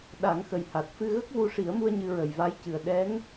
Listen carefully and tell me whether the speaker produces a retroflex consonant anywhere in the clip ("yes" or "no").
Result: yes